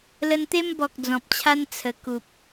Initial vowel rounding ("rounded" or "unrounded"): unrounded